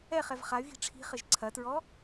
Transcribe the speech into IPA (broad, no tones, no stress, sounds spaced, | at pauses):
ɛ χ ɛ v χ a y̯ ɣ i̤ ʈ͡ʂʰ i̤ χ ɘ ʒ ǀʰ ɐ t ɹ ɔ